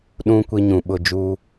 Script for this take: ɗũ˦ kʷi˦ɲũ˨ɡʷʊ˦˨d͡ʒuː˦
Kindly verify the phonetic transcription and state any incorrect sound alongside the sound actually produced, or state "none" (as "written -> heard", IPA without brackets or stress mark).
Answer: ɡʷ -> ɓ